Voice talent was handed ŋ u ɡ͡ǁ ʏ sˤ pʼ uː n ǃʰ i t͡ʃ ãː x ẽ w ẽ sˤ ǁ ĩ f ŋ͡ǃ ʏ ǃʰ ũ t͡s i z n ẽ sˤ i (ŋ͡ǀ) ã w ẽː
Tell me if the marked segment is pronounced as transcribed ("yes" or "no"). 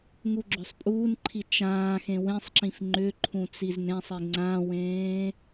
yes